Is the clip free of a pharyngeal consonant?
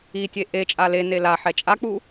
no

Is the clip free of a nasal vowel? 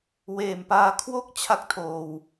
yes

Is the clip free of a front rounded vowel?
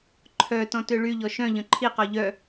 no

